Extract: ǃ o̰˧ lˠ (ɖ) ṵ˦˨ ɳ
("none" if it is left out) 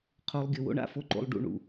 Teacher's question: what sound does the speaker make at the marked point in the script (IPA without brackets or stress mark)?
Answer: ɖ